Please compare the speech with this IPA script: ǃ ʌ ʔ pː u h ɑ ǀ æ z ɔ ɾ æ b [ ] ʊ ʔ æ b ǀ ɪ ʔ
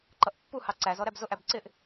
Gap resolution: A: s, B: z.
B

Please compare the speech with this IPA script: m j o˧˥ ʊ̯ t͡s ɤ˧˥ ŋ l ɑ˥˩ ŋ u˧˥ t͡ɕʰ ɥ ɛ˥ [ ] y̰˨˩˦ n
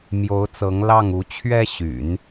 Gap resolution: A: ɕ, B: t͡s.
A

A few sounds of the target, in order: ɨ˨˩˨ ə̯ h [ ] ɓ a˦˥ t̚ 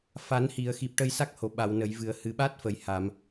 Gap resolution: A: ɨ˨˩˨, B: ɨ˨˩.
B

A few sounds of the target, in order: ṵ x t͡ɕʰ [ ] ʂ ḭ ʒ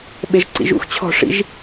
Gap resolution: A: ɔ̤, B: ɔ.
A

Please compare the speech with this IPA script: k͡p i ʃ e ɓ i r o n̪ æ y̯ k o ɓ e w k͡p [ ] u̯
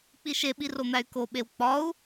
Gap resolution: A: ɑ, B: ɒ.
B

